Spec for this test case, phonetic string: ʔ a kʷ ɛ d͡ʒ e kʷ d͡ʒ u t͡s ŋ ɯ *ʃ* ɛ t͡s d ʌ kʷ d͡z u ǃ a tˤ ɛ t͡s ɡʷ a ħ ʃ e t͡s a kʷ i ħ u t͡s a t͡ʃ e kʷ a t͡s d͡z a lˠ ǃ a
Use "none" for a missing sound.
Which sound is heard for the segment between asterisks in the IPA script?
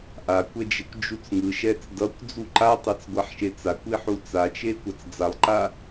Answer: ʃ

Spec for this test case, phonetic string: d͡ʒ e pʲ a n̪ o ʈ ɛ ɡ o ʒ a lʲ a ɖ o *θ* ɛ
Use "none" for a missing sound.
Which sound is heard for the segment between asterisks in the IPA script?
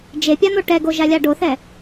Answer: θ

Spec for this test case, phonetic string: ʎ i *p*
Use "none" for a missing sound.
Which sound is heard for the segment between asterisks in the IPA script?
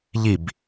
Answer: b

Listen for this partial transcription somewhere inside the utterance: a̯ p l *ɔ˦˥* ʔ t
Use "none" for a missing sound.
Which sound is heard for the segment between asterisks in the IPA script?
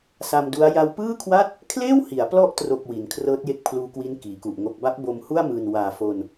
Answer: ɔ˦˥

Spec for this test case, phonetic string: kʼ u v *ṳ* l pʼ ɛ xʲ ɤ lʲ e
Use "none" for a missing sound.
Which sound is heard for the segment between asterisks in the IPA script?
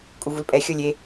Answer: u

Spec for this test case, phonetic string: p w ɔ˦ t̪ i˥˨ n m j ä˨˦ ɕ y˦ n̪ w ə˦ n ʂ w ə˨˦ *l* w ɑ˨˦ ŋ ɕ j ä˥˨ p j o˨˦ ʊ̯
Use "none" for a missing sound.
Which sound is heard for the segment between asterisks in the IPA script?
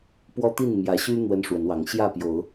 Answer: n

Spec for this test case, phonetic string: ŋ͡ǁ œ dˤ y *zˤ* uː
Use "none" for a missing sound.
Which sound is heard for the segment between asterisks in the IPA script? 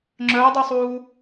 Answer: sˤ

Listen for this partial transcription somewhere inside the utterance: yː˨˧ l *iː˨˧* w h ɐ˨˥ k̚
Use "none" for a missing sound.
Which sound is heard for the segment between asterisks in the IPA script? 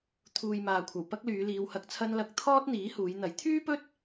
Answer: iː˨˧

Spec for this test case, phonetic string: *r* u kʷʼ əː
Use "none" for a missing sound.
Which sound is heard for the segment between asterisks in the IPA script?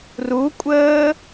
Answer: r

